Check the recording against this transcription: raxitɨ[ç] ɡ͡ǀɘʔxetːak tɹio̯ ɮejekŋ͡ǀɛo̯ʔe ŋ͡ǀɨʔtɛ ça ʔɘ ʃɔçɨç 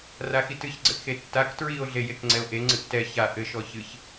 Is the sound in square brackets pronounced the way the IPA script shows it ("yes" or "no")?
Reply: yes